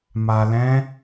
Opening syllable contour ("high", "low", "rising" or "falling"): low